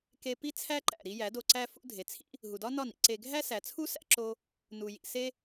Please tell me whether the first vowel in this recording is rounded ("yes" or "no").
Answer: no